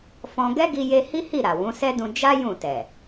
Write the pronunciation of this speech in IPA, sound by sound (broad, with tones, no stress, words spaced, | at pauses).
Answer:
fɔ̃˧ ɡɛ˦ɡi˧je˧ hi˦hi˦˨ɾa˨ wũ˨˦sɛ˦dũ˧ d͡ʒa˦ jũ˦˨tɛ˨